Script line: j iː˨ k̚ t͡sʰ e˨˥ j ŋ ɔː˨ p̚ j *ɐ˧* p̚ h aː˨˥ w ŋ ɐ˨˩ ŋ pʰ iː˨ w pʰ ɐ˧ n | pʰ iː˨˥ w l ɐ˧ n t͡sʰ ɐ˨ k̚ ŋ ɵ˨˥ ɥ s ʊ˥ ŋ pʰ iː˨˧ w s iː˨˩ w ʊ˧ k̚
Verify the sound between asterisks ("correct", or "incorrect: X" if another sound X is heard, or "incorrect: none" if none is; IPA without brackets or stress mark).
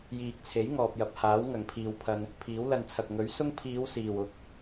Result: incorrect: ɐ˨